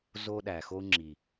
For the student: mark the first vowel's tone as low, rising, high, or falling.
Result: high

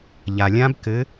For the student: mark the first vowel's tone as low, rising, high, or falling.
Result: low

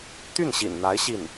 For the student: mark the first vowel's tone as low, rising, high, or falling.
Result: falling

